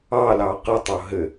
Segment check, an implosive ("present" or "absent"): absent